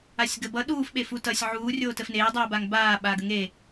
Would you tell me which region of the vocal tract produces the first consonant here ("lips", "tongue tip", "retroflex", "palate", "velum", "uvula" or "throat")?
tongue tip